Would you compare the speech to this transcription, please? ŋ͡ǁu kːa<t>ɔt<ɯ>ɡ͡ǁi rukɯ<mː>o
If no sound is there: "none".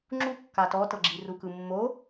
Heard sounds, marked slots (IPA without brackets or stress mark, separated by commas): t, ɤ, mː